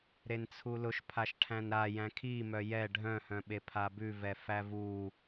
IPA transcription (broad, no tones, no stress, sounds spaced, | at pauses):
ɾ e n t͡sʰ u l ʊ ʃ pʰ a ʃ ʈʰ æ̃ n ɾ a j æ̃ kʰ i m œ j ɛ ɖʱ œ̃ h œ̃ ɓ e pʰ a b ʉ v ɛ f æ v u